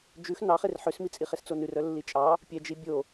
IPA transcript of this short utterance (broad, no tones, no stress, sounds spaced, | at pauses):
d͡ʒ ʉ x n ɑ χ e r ħ ø s m i t͡sʼ i χ e s t͡s o n ʉ r œ lː i t͡ʃʼ ɑ | pʲ ɛ d͡ʒ i bʲ o